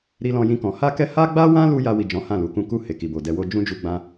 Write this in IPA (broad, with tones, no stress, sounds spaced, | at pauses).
ɾ i˧ l ɔ̃˧ j ĩ˧ k ɔ̃˨ h a˧ k ɛ˧ h a˦ ɡ͡b a˦ w ã˦ l u˧ j a˧ w i˨ d͡ʒ ɔ̃˨˦ h ã˦˨ l u˨˦ k ũ˦ k u˦˨ h e˨ k i˨ b o˨ d ɛ˧ w o˧ d͡ʒ ũ˦ d͡ʒ u˧ ɡ͡b ã˧